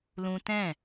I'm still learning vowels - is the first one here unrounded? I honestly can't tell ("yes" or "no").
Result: no